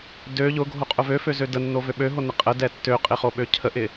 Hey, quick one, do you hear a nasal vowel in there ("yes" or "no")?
no